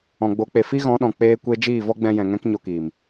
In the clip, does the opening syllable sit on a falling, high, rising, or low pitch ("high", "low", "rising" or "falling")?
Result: low